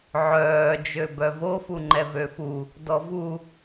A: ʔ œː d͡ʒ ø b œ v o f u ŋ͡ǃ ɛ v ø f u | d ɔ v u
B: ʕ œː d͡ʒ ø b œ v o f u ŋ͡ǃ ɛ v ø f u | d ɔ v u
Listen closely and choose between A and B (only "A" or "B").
B